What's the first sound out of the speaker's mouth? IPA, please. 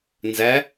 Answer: n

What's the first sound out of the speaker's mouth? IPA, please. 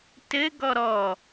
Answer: t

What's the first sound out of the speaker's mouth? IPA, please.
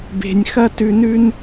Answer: b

